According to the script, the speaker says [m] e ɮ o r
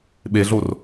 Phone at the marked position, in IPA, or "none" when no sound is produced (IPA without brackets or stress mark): ɓ